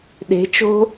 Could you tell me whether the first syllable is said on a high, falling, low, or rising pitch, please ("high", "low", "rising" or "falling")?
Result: rising